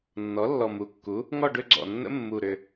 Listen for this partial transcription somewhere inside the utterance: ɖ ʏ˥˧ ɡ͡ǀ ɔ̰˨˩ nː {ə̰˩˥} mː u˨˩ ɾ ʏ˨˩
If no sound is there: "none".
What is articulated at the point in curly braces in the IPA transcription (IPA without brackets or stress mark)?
ə̰˦˥